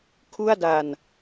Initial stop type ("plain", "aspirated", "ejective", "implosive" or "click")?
aspirated